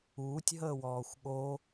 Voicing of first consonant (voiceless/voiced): voiceless